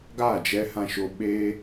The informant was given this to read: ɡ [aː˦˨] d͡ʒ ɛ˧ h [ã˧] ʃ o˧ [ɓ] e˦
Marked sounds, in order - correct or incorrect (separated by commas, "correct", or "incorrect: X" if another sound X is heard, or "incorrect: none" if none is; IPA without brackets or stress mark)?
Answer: correct, correct, correct